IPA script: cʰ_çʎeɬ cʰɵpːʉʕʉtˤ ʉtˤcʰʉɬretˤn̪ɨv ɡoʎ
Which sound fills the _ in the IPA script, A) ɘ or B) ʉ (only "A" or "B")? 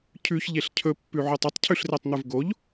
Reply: B